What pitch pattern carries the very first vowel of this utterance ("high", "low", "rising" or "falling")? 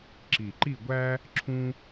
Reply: low